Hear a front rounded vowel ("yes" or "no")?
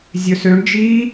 yes